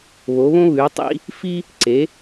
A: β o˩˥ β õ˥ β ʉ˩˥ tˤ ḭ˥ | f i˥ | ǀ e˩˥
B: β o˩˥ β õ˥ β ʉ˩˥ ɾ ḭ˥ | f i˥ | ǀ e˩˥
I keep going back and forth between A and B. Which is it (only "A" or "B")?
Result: A